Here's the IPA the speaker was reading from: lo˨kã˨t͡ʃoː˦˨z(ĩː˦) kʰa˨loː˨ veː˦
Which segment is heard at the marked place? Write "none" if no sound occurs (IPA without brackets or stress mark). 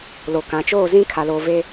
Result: ĩ˦